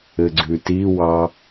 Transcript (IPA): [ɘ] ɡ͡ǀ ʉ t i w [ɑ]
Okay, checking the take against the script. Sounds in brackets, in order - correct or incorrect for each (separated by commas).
correct, correct